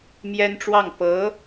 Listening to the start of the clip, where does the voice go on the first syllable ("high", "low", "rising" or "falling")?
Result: high